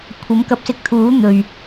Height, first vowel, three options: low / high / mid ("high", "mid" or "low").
low